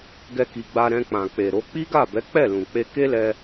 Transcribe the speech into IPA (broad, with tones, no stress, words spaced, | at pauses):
ɡɛ˧ki˨ɡ͡ba˧ ɾɛ̃˧k͡pã˨k͡pe˨ɾo˨˦ k͡pi˦ɡa˦˨bɛ˨˦ k͡pɛ˦˨lũ˨k͡pe˧ ke˦lɛ˧